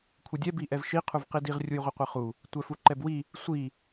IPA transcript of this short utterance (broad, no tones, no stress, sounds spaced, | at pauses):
kʷʰ ɘ dʲ ɛ b i ʔ ɛ v ʃ i qʰ u v q i d i ʁ rʲ u j ʁʷ ɘ qʷ ɘ χ u | tʷ ɛ f u ǃ ɛ b w i | sʷ i